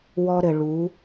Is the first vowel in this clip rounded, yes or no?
yes